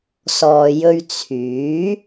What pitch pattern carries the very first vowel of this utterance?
low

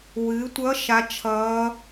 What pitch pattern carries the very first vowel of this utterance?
rising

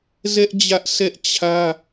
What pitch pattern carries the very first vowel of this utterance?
high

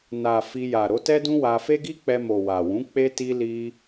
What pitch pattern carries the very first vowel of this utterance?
low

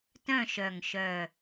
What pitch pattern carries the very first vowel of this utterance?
falling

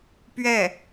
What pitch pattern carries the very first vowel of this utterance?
falling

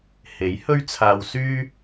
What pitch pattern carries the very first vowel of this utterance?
rising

